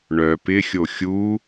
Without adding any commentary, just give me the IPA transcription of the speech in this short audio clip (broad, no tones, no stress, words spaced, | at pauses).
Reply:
ɳœ pɪxʲo xʲu